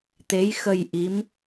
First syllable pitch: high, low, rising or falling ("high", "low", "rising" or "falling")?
rising